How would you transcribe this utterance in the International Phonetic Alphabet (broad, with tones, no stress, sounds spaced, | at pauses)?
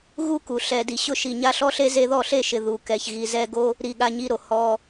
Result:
ɣ u˦ k u˨ ɬ ɛ˨ d i˨ ɕ ʊ˧ ʃ i˨ ɲ a˦ ɬ ɔ˦ ɬ e˦ z e˧ ð ɔ˦˨ ɬ e˦˨ ʃ ɪ˨ ð u˨ k ɛ˨ ç ɣ i˨ z ɛ˧ ɡ o˦ | ɾ i˨ ɠ a˧ ɲ i˧ ɾ o˨ h ɔ˧